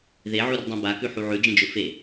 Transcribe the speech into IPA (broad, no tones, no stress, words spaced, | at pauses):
ðeʕurdˤõ bakʉħu ʕʉd͡ʒĩd͡ʒɵ fe